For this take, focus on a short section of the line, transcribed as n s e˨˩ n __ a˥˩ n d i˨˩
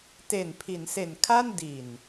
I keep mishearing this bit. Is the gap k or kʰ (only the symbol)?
kʰ